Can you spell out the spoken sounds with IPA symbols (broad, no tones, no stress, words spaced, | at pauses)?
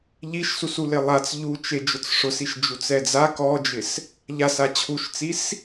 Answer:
ʎiʃsus ulɪlˠat͡s ʎut͡ʃe d͡ʒʊt͡sʂʊsiʃ d͡ʒut͡sɛd͡za kɔd͡ʒɪs | ʎasa t͡ɕʰuʃt͡sis